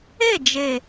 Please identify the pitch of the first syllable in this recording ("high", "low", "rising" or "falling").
falling